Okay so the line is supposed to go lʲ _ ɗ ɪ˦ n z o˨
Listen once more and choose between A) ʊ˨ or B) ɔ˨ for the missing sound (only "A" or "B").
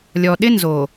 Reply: B